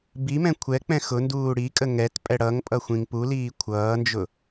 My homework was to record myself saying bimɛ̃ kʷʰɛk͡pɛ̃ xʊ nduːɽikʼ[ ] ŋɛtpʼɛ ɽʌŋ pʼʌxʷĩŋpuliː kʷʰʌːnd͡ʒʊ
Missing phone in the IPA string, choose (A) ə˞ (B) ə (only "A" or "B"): B